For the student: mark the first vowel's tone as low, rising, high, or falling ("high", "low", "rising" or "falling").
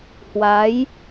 rising